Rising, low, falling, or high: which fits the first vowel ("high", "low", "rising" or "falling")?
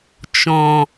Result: low